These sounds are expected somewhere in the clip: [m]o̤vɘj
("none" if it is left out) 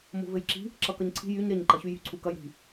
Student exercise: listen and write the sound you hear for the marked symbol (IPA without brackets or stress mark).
m